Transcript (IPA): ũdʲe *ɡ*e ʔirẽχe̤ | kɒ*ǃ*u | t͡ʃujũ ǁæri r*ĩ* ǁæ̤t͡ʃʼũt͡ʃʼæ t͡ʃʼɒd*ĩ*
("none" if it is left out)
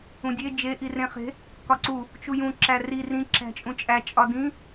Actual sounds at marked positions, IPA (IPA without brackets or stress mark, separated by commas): d͡ʒ, ǀ, ĩ, ĩ